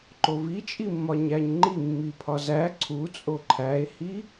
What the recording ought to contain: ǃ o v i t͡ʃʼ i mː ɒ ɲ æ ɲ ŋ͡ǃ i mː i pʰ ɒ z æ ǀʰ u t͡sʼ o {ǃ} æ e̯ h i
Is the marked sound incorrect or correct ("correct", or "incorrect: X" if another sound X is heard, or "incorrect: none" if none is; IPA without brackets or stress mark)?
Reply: incorrect: ǃʰ